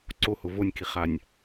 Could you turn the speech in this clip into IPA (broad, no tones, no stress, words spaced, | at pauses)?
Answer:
ǀohʊ vonʲkiχanʲ